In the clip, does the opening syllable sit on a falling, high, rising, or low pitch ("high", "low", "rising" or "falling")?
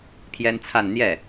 high